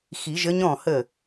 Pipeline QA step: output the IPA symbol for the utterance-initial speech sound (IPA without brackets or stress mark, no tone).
x